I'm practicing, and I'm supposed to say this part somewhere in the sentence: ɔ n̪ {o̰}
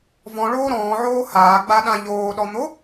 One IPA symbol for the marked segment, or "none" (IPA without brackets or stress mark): o